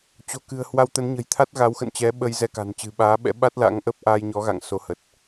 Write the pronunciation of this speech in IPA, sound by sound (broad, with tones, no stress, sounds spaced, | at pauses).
t͡ɕ o̤˨˩ k ɨ̤˨˩ ə̯ h w a˧ w t̪ ə˨˦ n ɲ ə̤˨˩ j t̪ʰ a˦˥ t̚ ɣ a˨˦ w x ə̰˧˨ n t͡ɕ ɛ˨˦ ɓ ə˧ j z ɛ˧ k a̤˨˩ n t͡ɕ ɨ̤˨˩ ɓ aː˨˦ ɓ ɛ̰˧˥ ɓ a˦˥ t̚ l a̰˧˥ ŋ ʔ ə˦˥ p̚ ʔ a˧ j ɲ ɔ˨˦ ɣ a̰˧˨ ŋ s o˨˦ h ə˨˩ t̚